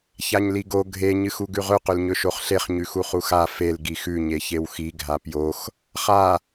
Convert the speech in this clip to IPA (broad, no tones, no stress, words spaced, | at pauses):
çaɲliɡo ɡʱe ɲɨxuɡʉʁɵ qɵlɲɵʃoχɬeχ ɲʉxuχuxa fel ɡixʉ ɲeçewxi ɡʱapjox | χa